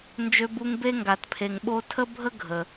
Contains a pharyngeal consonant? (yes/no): no